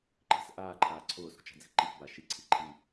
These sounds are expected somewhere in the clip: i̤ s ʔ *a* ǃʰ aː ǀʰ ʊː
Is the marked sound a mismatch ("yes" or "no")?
yes